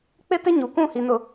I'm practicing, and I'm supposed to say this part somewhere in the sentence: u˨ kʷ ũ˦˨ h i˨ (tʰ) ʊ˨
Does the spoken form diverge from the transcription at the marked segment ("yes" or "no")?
yes